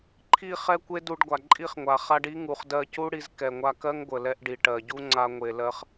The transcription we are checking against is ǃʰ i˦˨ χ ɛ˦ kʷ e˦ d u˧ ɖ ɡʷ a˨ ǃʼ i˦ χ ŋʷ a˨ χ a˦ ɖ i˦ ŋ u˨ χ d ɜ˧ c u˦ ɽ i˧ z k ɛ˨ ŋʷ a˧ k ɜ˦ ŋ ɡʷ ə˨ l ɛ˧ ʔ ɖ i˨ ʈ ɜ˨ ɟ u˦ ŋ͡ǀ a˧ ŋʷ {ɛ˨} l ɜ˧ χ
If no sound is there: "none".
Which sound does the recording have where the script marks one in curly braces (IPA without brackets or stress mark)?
e˨